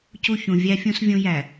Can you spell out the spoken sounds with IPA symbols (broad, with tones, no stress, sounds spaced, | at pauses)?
c u˦˨ ç ũ˨ vʲ æ˦ fʲ ũ˦ s vʲ ũ˦ j æ˨